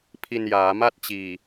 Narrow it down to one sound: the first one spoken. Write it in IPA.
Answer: pʰ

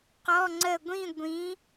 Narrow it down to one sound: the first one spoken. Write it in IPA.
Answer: q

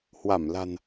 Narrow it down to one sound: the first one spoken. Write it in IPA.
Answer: h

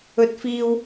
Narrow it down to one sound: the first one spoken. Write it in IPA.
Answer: ɵ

